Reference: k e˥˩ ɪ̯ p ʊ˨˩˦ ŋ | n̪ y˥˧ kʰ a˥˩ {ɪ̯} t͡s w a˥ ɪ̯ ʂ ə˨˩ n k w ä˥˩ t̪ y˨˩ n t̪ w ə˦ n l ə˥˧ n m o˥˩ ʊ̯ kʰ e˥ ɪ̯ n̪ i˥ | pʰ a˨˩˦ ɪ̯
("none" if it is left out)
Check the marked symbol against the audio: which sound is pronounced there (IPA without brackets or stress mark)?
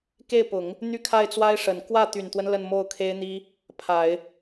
ɪ̯